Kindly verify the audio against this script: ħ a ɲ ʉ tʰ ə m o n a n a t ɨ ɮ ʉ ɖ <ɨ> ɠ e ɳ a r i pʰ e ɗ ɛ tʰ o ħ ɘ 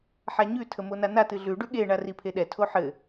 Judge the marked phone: incorrect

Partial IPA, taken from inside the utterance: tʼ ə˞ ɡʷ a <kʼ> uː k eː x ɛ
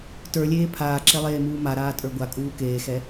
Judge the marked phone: correct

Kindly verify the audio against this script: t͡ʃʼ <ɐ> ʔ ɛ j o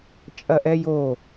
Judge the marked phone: correct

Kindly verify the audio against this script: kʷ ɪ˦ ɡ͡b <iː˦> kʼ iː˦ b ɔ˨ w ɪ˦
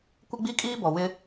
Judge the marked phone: incorrect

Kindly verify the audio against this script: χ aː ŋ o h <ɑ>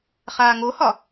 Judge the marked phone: incorrect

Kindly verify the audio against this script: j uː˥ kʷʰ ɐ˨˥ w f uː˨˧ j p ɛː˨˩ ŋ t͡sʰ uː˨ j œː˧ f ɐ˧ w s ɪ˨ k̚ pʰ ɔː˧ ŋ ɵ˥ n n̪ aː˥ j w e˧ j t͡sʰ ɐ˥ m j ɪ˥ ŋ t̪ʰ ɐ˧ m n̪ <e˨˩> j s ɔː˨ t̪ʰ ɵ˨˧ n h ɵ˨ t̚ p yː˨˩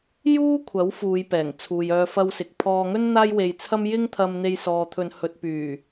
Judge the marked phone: incorrect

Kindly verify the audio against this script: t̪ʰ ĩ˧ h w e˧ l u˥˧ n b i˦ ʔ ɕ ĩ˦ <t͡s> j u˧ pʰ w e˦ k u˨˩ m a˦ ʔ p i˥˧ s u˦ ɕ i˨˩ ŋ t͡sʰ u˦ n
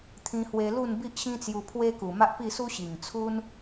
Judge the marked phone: correct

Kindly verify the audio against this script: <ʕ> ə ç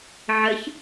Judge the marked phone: correct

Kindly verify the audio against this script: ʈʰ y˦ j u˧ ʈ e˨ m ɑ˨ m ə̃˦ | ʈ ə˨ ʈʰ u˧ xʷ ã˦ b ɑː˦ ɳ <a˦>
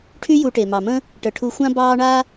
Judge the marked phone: correct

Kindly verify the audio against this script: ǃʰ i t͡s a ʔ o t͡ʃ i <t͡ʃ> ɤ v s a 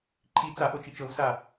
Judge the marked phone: correct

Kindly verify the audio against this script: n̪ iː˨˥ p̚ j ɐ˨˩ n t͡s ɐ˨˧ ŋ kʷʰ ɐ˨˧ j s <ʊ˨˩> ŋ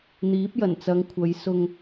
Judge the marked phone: incorrect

